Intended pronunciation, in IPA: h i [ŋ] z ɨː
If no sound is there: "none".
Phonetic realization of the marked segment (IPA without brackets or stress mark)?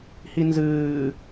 n